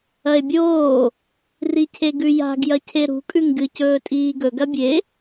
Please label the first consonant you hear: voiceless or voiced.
voiced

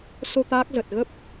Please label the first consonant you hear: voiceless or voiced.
voiceless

